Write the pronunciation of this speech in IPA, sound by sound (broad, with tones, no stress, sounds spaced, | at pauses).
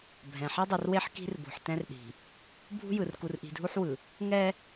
bʱ ɛ̃˨ ħ ɛ˦ dˤ e˨ r w e˦ ħ k i̤˦ r b o̤˨ ħ t ɛ̃˦ r ɗ i̤˨ | bʱ ṳ˦ j ɯ˨ r k u˨ r ʔ i̤˨ dʱ u˦ ħ w ɯ˨ | ŋ ɛ˦